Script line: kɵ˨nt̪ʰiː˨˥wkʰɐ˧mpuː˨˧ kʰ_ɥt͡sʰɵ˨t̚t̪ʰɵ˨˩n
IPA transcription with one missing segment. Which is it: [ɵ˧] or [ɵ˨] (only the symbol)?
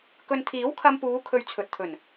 ɵ˧